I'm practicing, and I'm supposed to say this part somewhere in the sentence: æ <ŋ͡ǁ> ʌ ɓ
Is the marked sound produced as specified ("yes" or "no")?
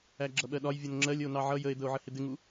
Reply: no